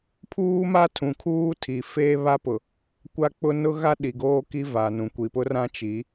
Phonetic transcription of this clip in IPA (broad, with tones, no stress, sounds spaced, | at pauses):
pʰ uː˦ m a˦ tʰ ũ˨ kʰ uː˦ tʰ i˨ f eː˦ β a˦ p ʊ˨ | kʷ a˦ k͡p ʊ˦ n ʊ˦ ɣ a˦ ɗ i˨ ɡ oː˦ k i˦ v a˨ n ũ˨ kʷ i˨ p ʊ˦ r ã˦ t͡ʃ i˨˦